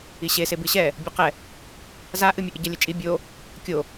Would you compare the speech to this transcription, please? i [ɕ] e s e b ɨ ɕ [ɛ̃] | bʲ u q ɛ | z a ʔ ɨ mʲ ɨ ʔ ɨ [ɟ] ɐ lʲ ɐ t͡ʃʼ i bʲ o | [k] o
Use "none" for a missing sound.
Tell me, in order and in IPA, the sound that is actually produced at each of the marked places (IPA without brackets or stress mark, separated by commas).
ɕ, ɛ, ɟ, kʲ